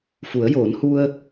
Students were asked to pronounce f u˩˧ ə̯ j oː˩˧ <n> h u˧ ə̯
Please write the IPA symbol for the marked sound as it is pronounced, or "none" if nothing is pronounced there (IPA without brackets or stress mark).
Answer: n